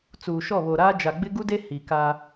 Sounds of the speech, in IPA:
t͡suː˨ʃɔ˦˨βo˨ɾaː˦ d͡ʒa˨ɡ͡bɪ˦ɡu˦de˦ hi˨ka˦

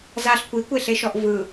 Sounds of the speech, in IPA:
zaɬ kʷikʷeɬeʃɔʔ vɯ

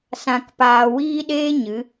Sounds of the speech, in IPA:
sã˧kpaː˧ wiː˦ ɗeː˦ ɲɨ˨˦

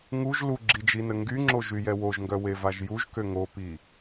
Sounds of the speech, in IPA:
ŋuʒ luɡ͡ǁid͡ʒinə ŋɡyŋ͡ǁoʒyjɛ woʒŋɡœwevaʒ juʒkø ŋopi

